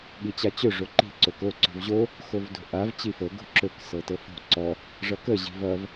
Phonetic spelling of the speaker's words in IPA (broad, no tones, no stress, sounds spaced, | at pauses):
ɠ i t͡ɕ a t͡ɕ ɵ ʐ o ǃ i̤ ǀ o k o ǀ o̤ v ʑ o | x o v d o̤ ʔ a v t͡ɕ i f ɤ ɡ o̤ ǁ ɵ k s ɤ t ɤ f o̤ ǀ ɔ | ʐ ʌ k ə ʑ i̤ v ʌ v